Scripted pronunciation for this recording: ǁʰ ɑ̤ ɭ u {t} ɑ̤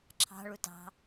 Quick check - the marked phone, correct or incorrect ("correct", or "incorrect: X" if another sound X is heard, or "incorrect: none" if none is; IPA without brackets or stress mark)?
correct